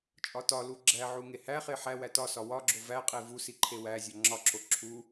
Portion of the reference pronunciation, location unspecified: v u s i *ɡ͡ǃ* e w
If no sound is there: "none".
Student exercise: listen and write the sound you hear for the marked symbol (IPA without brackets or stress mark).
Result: ǃʰ